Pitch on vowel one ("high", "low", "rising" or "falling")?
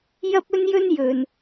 high